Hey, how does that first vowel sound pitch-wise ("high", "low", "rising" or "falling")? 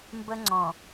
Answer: high